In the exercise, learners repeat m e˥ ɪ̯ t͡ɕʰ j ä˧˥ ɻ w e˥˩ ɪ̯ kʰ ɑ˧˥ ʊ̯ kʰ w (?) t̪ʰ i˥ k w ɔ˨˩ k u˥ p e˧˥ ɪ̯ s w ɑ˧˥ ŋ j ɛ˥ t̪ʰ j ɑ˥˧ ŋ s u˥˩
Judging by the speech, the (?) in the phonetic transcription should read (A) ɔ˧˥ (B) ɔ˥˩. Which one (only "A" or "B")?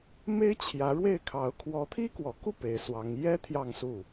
A